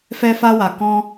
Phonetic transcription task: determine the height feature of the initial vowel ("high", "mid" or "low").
mid